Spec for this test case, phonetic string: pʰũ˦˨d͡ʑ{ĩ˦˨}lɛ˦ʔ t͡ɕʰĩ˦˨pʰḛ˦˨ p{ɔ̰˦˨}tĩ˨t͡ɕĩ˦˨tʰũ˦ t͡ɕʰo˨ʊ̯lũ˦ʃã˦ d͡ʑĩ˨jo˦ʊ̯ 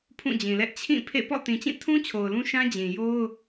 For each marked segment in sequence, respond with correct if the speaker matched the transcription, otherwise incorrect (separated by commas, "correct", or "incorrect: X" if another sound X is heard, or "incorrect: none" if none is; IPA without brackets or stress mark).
incorrect: ĩ˨, correct